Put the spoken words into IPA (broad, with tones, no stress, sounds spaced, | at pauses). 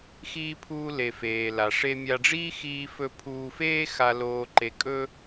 x iː˧ pʰ uː˧ l e˩ f eː˩ l a˩ ʂ e˧ mʲ a˧ ɖ͡ʐ iː˥ x iː˧ f ɵ˧ pʰ uː˧ f eː˥ x a˧ l oː˧ ǃ e˧ kʼ ɵ˥